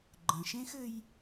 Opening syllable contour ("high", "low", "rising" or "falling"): low